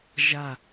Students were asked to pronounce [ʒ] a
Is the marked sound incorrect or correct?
correct